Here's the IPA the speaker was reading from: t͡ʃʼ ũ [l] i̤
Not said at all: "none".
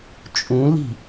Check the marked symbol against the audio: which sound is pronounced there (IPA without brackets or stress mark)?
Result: l